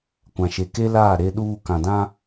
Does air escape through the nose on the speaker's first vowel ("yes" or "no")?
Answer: yes